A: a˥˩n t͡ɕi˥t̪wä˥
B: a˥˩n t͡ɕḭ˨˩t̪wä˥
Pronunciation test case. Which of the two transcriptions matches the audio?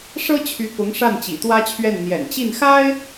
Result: B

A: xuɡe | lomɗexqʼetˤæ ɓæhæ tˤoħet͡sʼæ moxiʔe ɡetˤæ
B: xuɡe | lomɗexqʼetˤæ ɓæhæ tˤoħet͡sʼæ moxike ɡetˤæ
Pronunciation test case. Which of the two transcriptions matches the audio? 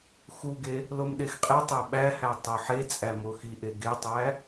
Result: A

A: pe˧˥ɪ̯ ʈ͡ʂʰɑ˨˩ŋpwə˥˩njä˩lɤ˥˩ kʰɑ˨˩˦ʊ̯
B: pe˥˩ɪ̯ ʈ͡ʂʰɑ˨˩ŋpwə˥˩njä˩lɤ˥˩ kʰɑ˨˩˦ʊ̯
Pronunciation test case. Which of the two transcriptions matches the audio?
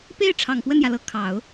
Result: B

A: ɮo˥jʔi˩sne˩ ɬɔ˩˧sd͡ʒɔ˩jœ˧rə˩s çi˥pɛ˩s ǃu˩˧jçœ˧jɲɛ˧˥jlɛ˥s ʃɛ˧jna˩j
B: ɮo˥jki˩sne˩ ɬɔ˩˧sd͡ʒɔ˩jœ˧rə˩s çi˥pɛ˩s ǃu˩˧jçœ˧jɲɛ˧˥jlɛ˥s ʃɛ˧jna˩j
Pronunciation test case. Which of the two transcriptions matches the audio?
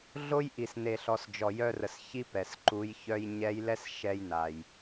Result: A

